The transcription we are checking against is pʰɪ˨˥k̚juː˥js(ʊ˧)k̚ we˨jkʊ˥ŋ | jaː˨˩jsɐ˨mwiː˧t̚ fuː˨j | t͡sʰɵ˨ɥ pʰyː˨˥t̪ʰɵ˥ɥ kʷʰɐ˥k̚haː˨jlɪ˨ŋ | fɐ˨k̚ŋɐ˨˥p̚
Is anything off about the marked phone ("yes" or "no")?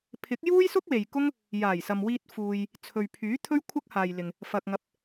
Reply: yes